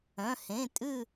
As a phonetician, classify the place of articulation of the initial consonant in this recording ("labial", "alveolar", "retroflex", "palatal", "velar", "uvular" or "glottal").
glottal